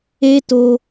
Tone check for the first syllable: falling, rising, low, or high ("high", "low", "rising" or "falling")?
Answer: high